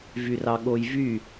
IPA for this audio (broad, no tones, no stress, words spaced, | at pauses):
vyrɑɠojvy